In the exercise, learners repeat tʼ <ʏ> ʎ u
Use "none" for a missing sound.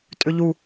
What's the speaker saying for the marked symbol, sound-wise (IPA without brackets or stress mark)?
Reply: ʏ